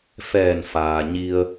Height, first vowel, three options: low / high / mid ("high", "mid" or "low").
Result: mid